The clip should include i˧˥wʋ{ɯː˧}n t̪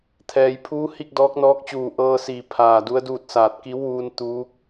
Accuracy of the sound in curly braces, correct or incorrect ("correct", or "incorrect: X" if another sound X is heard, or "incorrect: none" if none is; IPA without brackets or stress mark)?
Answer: incorrect: uː˧